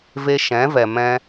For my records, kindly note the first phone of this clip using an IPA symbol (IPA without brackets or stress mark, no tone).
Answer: v